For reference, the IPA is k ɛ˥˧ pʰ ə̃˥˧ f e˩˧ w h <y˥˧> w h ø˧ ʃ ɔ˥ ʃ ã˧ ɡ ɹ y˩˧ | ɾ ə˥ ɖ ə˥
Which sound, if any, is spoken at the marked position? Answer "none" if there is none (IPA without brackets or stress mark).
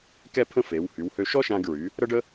y˩˧